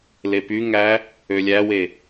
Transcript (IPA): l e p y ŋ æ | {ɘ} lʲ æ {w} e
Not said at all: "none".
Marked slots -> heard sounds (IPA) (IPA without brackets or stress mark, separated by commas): ø, w